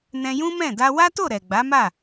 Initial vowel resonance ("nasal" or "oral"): nasal